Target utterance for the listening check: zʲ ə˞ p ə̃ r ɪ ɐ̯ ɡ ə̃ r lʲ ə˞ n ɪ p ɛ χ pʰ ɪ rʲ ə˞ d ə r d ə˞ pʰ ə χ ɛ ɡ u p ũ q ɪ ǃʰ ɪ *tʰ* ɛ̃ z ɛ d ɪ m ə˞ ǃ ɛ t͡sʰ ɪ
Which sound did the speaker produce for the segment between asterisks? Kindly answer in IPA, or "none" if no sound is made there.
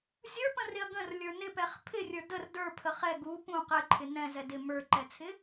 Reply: n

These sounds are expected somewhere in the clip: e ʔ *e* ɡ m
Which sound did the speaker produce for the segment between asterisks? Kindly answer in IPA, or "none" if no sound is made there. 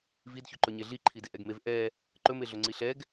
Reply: ɛ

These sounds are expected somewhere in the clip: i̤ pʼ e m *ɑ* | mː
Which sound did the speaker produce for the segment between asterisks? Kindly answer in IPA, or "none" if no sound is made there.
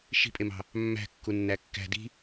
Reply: ɑ̤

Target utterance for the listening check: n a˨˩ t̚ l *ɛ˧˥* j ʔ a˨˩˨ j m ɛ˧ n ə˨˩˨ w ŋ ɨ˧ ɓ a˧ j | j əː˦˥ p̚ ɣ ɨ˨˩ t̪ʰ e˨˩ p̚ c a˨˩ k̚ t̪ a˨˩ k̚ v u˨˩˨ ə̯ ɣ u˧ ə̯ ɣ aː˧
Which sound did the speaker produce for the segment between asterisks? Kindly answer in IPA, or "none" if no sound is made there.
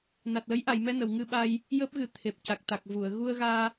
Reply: ə˧˥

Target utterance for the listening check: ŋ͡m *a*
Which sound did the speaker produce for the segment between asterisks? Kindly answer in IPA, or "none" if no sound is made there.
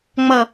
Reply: ʌ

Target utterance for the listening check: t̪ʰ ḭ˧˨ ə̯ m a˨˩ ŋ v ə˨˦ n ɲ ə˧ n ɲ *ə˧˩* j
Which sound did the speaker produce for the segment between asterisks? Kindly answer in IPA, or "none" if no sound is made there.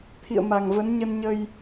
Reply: ə˧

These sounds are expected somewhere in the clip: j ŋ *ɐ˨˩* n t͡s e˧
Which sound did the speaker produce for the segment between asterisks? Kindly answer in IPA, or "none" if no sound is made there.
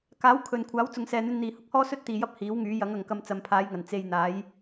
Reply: ɐ˨˩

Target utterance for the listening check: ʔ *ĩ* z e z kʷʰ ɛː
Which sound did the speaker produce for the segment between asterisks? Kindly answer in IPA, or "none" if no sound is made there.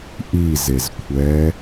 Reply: i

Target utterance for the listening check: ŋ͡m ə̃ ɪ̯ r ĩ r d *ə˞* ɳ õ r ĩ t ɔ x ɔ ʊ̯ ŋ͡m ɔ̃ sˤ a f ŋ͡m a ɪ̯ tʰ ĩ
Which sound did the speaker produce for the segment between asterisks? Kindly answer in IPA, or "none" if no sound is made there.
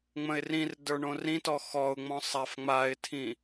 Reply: ə˞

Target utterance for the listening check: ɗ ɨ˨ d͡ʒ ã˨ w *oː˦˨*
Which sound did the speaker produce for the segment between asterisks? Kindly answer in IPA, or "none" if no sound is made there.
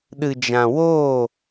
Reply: oː˦˨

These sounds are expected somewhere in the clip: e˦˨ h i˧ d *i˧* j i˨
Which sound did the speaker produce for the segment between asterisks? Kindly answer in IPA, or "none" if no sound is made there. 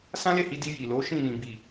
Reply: i˧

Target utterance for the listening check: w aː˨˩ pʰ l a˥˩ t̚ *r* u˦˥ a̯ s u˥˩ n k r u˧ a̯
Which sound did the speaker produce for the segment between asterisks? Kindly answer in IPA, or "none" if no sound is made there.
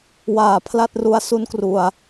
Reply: r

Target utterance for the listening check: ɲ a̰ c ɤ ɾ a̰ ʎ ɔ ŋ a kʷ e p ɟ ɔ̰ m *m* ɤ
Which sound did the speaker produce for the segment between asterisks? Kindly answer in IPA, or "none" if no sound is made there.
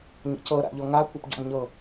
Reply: ɲ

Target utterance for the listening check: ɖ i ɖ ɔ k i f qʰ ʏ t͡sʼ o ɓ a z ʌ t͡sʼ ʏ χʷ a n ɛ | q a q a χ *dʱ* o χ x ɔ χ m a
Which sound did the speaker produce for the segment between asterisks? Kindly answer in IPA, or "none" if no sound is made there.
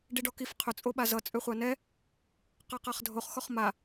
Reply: dʱ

